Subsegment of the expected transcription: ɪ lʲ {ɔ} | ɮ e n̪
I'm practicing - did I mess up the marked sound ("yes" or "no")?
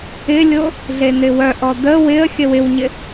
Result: yes